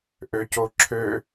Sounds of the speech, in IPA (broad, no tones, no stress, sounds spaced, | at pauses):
ʔ ø c o ǁʰ ø